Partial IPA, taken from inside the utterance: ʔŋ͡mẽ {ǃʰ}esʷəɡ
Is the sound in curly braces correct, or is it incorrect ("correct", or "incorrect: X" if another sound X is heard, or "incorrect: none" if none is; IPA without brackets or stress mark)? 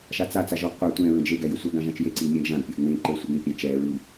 incorrect: ǃ